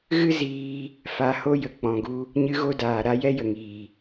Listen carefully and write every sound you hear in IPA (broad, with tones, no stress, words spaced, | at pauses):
ɣɨ˦ziː˧ | fa˧ ho˦jə˨ k͡pɔ̃˨ɡu˦ | ɲɨ˦ɣo˦daː˨ɾa˦ jɛ˦jə˨ŋiː˨